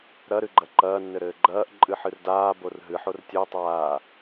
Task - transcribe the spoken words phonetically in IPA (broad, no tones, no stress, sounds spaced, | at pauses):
ɾ ɐ ɾ ɨ ɡ͡ǃ ɐ ǃ ɐː nː ɘ ɾ ɘː ɡ͡ǃ ɐː ʔ ǃʼ ɨ ħ ɨ r d aː b o r ɦ ɨ ħ o r tʲ ɘ ʊ̯ tˤ aː